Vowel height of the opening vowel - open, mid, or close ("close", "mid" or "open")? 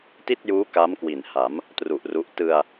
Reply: close